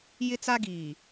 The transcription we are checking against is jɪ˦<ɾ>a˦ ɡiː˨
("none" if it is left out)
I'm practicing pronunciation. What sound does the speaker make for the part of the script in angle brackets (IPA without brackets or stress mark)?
t͡s